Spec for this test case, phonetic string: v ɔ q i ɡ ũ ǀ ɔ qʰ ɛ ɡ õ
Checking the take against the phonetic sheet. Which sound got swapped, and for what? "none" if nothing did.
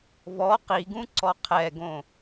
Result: none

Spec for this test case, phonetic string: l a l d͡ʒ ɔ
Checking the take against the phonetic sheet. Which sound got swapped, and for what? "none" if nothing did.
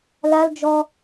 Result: none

